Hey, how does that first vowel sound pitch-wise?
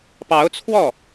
rising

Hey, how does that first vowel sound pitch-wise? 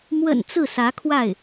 low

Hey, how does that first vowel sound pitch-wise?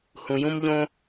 low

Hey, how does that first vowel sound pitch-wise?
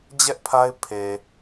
high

